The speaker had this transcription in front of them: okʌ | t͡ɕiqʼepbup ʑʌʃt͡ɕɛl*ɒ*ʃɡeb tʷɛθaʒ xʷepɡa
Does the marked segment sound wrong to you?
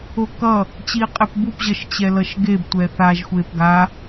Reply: yes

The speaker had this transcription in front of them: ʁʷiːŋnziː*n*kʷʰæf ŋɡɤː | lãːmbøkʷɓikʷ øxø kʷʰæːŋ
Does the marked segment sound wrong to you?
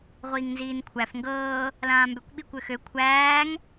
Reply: no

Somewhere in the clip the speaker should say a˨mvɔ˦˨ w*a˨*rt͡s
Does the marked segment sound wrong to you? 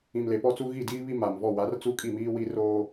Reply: yes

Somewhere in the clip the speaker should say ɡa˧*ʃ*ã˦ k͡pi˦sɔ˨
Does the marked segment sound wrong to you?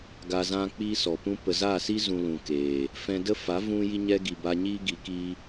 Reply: yes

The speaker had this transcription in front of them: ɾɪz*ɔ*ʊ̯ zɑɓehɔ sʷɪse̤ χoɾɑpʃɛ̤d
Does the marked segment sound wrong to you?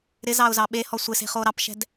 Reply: yes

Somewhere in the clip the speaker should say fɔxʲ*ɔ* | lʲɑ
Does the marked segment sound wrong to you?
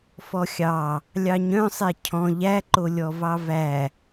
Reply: yes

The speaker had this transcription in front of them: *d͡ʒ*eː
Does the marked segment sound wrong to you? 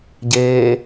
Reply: yes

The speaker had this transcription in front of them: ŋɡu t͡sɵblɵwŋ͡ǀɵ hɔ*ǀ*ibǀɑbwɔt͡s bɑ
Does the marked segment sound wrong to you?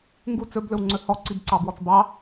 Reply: no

